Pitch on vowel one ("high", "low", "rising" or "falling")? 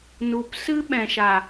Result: low